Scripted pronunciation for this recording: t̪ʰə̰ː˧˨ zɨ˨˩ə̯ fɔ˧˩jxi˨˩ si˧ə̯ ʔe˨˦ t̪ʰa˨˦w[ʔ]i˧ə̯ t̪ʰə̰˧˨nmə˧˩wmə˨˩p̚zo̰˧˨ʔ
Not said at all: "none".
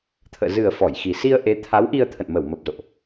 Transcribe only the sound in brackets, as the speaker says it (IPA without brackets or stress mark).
ʔ